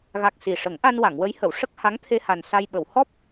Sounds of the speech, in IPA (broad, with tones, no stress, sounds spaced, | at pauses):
ɣ a˨˩ k̚ s i˨˩ ʂ ə˨˩˦ ŋ ʔ a˧ n w a˨˩˨ ŋ w ə˧˥ j h ə˨˩˨ w ʂ ə˦˥ k̚ h a˧˥ ŋ t̪ʰ e˧ h a˨˩ n s a˧ j ɓ ə˨˩˨ w h ɔ˦˥ p̚